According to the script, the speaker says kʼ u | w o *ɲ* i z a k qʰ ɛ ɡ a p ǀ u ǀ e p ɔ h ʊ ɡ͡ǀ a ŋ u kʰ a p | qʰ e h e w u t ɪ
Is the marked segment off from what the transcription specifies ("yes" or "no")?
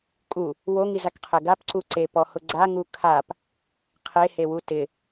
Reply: yes